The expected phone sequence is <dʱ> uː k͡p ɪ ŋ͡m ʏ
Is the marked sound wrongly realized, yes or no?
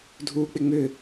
no